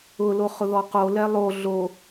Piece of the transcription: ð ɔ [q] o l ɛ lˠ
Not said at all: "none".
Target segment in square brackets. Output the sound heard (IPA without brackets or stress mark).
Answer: q